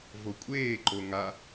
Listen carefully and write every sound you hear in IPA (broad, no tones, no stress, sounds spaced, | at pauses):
v o kʷʼ eː ǃ o ŋ a